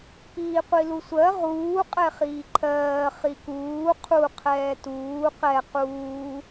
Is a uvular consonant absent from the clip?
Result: no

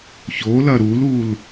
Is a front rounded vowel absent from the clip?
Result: yes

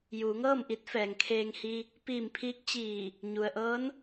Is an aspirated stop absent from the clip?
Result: no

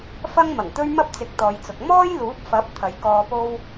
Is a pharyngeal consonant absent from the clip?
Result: yes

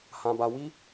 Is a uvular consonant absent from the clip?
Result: yes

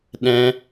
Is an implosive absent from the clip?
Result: no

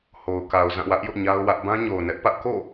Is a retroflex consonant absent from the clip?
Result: yes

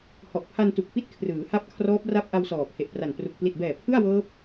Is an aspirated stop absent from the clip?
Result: no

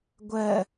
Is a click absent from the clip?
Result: yes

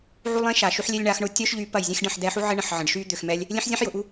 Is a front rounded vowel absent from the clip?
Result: no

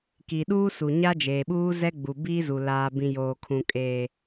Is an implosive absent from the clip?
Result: no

